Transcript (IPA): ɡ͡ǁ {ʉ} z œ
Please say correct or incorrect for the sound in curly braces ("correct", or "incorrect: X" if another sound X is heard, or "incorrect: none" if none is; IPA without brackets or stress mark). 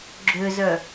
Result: incorrect: ø